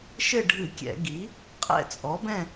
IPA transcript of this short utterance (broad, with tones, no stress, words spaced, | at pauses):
ʃɘ˦˨ɖʱɨ˧˩˧kʲɛ̰˧˩˧ ɡi˩˥ | qʼɛ̰˦˨t͡sʼɔ˩˥bɛ̃˦˨